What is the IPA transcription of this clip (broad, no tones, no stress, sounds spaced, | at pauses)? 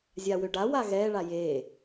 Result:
zʲ a w ø ɖ a w a ɣ ɛ ɭ a j e